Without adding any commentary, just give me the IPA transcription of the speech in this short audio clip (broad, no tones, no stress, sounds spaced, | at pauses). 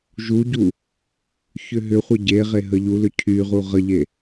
ʒ u ɟ u | ç ʏ ɦ ʏ χʷ ə ɟ e ʁ e ɦ ə ʎ u l ʏ cʰ y ʁ u ʁ ə ʎ e